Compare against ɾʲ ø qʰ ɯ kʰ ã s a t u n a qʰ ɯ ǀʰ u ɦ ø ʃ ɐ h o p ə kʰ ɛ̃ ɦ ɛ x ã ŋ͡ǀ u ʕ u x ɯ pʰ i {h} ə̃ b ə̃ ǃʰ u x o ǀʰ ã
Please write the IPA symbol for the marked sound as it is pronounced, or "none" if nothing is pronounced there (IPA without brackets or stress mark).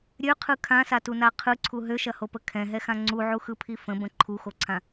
f